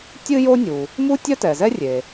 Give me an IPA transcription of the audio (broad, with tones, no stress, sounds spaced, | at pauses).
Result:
tʲ ɨ˥ j o˥ nʲ u˩ | m u˥ tʲ œ˥ t ɛ˩ z ɛ˥ rʲ e˩